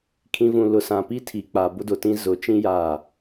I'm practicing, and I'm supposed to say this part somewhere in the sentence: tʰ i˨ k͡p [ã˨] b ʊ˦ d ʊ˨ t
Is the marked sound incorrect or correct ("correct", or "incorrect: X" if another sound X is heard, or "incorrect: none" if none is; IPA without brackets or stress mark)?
incorrect: a˨